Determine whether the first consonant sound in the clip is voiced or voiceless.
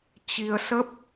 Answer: voiceless